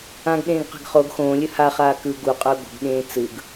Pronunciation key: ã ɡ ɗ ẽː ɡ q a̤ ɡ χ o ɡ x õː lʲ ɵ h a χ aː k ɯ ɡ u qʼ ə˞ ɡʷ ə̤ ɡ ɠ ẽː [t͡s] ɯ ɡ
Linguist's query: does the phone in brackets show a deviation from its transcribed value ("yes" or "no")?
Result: no